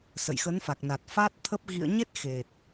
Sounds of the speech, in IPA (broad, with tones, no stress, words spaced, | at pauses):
sə̰˧˨jxə˨˦nfa˨˩k̚ na˨˩t̚ fa˦˥t̚ t̪ʰə˦˥p̚ ɣḭ˧˨ə̯ɲe˦˥t̚ xe˨˩t̚